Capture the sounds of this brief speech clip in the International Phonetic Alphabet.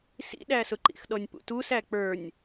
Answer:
sḭɗæsʊǃḭx ɗɔnʲpṵtusæ k͡pə˞nʲ

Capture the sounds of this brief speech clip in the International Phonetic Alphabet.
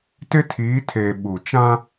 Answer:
tɪ˦tʰiː˨˦tʰeː˨ ɓu˨ t͡ʃã˦

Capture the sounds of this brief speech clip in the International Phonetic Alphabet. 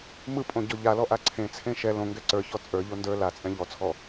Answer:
mɯpʼõ ɟɔʎalɔ ʔaǀʰẽt͡sʰẽ ʃɛ lõŋɡɛ ǀə˞çɔ t͡sʼə˞ʎo ndə˞ lat͡sʼɛ̃ ʎɔt͡sʰɔ

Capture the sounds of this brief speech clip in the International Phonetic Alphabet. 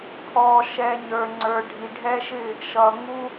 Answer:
pʰɔ˨ʃɛ˨ ɲə˞˨ŋ͡ǀə˞˨ɖʱi˨ɖʱɛ˦ ʃɪ˦˨ | ʃʌ˨ŋu˦

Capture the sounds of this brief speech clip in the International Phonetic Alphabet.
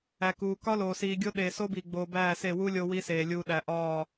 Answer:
æ˨kuː˨ kɒ˦loː˨siː˨ɡʲo˦ ɗeː˨so˦biː˨ɡ͡boː˨ bæː˦˨se˦˨wu˦ lʲo˦wi˦seː˨ lʲuː˨ɗæ˨ ʔɒː˦˨

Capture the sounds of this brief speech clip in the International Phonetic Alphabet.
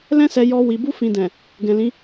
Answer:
lɛ̃˦sɛ˧jɔ˧ wi˨bu˧fĩ˨dɛ̃˨ | ɡɛ̃˨ lĩ˨˦

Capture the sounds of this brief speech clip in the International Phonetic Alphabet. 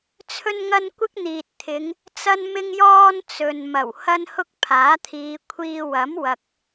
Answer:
t͡sʰɵ˥nŋɐ˥n kʷɪ˥k̚n̪iː˨t̚t̪ʰɪ˨˧ŋ | t͡sɐ˥nmɪ˥ŋjɔː˥n t͡sɵ˨nmɐ˨˩w hɐ˥nhʊ˥k̚ pʰaː˨˥t̪ʰiː˨˧ kʷʰiː˧wɐ˨˥mwɐ˨k̚

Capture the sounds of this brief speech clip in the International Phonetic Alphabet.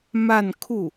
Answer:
ma˥˧nkʰu˥˩

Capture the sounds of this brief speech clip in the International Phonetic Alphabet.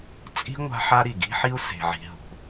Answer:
t͡sʼi̤˥ ŋʷa̤˥ħa˥ ɾi˩ɡi̤˥ħi˥u̯ se̤˩ʕi̤˩ ɦṳ˩

